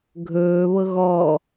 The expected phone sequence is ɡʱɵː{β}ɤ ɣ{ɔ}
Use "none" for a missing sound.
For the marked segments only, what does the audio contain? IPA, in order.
β, ɔ

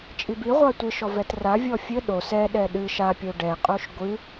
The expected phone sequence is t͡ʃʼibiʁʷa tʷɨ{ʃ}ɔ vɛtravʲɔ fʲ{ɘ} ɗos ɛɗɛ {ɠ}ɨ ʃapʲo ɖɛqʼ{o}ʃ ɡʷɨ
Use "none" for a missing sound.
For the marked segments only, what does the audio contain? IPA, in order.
ʃ, ɘ, ɗ, o

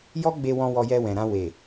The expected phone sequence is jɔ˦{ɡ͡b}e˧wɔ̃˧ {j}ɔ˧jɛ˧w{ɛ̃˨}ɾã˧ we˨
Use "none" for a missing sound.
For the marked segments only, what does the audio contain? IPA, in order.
ɡ͡b, w, ɛ̃˨

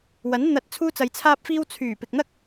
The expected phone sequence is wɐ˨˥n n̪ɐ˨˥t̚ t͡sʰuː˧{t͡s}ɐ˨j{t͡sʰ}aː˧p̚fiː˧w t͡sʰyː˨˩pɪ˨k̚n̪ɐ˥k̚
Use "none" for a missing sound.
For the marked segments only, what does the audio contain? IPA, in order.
t͡s, t͡sʰ

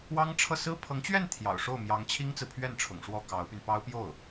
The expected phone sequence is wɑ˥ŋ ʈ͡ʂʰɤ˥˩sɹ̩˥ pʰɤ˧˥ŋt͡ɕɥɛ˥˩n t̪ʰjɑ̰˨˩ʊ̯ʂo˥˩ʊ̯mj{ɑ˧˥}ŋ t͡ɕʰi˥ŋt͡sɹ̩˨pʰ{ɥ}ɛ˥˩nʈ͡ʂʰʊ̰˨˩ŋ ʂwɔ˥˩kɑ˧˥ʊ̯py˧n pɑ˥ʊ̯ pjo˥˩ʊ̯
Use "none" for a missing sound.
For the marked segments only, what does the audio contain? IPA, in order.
ɑ˧˥, ɥ

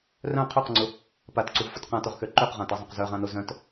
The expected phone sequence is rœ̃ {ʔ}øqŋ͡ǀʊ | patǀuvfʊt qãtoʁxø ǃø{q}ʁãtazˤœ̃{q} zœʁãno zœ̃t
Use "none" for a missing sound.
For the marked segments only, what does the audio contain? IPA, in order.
qʰ, q, q

